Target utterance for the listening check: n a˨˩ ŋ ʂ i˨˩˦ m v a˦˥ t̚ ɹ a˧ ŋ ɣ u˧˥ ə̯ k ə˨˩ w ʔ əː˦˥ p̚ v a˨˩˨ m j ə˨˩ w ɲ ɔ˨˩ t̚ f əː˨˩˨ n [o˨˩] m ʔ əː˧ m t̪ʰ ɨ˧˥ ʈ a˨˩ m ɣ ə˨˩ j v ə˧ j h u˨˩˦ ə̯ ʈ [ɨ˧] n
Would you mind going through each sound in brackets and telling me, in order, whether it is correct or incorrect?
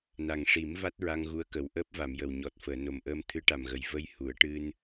correct, correct

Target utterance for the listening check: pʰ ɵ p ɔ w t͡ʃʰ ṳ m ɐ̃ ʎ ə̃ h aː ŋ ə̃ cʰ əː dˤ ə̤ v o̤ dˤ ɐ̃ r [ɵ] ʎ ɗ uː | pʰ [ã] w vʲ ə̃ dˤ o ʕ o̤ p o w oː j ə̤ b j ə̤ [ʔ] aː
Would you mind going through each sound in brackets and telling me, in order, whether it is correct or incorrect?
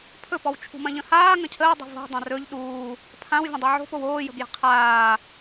correct, correct, incorrect: qʰ

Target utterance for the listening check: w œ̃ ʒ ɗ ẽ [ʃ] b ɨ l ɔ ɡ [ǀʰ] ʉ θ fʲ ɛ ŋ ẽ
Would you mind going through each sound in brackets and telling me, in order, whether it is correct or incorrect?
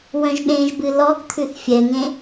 incorrect: ʒ, incorrect: t̪ʰ

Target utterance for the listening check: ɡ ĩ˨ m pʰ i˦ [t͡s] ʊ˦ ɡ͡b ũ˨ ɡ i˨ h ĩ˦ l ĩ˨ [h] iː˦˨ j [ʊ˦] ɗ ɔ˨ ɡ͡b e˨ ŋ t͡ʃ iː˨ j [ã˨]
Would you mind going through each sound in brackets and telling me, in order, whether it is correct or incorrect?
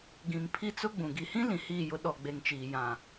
correct, correct, correct, correct

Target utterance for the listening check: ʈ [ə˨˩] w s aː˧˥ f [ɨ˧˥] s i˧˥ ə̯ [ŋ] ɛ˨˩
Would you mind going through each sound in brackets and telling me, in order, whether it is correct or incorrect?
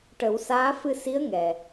incorrect: ə˨˩˦, incorrect: ɨ˧, correct

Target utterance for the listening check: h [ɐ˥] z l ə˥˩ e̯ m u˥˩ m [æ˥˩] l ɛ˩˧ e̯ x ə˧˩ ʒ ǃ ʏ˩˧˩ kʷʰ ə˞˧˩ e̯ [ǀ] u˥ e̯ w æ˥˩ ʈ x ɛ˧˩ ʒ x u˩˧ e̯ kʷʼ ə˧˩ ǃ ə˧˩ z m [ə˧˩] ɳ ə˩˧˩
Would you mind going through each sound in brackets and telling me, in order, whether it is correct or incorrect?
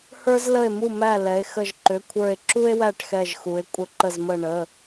incorrect: ə˞˥, correct, incorrect: ǁ, correct

